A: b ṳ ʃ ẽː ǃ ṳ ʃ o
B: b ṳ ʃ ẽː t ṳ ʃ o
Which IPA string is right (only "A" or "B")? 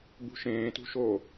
B